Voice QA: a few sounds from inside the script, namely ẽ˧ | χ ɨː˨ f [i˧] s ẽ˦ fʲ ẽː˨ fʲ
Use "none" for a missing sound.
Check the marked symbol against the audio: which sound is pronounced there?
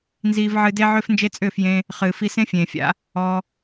i˧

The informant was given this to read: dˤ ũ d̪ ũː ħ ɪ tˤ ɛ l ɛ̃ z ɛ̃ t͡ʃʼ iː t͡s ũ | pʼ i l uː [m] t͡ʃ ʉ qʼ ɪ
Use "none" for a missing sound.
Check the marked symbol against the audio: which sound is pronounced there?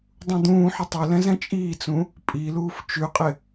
f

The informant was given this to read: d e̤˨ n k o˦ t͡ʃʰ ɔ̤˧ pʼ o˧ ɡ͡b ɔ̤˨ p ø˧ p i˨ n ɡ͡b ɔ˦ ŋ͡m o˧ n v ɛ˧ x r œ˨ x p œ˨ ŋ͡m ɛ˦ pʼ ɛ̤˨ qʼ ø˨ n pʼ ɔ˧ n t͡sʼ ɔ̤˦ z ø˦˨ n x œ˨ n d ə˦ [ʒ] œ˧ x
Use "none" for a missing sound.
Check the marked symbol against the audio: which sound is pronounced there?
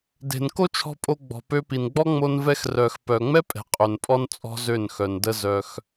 z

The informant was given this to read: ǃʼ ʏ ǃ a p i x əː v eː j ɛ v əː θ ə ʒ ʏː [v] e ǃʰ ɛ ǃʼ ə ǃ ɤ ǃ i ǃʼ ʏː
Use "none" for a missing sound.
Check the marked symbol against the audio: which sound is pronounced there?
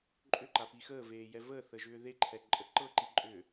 ð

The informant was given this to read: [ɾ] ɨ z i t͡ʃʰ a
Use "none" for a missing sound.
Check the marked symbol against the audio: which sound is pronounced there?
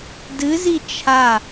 d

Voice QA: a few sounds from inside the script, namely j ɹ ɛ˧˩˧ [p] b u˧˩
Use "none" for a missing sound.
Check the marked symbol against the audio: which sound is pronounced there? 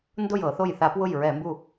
m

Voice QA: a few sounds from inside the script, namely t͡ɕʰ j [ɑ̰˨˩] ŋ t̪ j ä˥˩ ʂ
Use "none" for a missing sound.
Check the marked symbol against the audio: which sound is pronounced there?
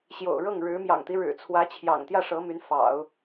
ɑ̰˨˩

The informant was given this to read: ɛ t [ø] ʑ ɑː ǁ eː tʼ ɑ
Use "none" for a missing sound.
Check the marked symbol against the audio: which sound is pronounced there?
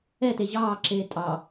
e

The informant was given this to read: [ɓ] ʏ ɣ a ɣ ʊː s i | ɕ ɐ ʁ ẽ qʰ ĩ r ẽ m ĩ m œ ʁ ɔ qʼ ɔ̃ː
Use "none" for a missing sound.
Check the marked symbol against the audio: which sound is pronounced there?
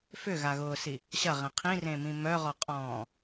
f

